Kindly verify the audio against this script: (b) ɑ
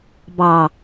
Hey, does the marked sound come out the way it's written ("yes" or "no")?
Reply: yes